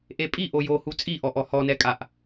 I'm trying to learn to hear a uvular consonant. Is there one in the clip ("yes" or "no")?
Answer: no